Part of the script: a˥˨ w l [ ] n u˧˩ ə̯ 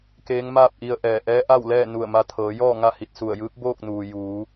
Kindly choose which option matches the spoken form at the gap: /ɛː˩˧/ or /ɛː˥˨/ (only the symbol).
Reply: ɛː˥˨